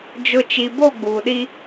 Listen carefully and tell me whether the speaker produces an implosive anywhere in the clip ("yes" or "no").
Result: yes